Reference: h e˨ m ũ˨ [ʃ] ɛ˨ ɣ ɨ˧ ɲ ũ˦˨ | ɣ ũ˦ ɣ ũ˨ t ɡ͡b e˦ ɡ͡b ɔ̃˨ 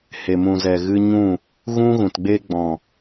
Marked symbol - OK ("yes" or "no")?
no